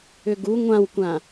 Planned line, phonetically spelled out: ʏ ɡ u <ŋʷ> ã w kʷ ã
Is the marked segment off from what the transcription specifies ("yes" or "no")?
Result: no